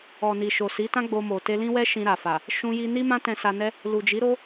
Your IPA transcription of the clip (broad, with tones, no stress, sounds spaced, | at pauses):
ɔ˨ n i˨ ʃ o˨ s i˨˦ t ã˦ ɡ͡b o˧ m o˨ t e˧ l ĩ˦ w ɛ˦ ʃ ĩ˧ ɾ a˨ f a˨ | ʃ ũ˧ j i˧ n i˦ m ã˦ t ɛ̃˧ s a˧ n ɛ˦ | l u˨ d͡ʒ i˨˦ ɾ o˦